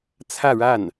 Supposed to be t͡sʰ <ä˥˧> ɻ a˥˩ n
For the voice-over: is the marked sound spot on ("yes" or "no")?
yes